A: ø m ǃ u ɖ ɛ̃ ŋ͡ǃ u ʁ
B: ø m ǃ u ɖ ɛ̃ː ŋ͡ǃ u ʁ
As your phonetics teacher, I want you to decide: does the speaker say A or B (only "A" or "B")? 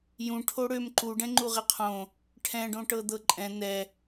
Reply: A